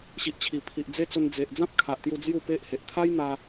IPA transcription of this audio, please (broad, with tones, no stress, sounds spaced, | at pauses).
ɕ i˨ ʔ t͡ɕʰ i˨˩ pʰ i˨ ʔ d͡z e˦ t͡s o˧ n d͡z e˨ ʔ d͡z ã˦ p̚ kʰ a˨ ʔ t̪ j u˧ d͡z j u˥˧ p e˦ ʔ h e˨ ʔ t̪ʰ a˦ j n̪ a˧